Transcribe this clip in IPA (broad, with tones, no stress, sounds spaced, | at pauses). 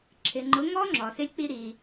ǁʰ ɪ˨ ŋ͡ǃ ʊ˨˦ ŋ ɔ˧ ŋ͡ǁ ɔ˨ s ɪ˦ lʲ k͡p i˦ ɾ i˧